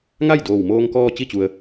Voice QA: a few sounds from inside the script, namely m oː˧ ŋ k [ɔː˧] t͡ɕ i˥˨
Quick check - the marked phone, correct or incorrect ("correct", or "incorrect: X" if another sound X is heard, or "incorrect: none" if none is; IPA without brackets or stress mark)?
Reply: correct